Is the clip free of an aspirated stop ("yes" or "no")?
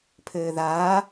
no